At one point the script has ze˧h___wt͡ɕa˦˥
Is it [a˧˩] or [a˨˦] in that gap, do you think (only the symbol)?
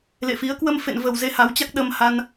a˨˦